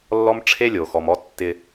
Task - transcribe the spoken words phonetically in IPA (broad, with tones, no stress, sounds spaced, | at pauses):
lː ɔ˦ m ʈ͡ʂʰ e˦ lʲ o˨ x ɔ˨ m ɔ˦ tː ɪ˦